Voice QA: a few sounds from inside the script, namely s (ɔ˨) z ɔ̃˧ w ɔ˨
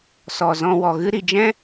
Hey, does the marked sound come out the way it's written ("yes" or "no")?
yes